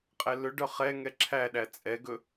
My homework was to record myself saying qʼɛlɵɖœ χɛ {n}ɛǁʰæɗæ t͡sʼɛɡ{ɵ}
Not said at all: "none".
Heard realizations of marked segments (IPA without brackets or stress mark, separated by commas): ŋ, ɵ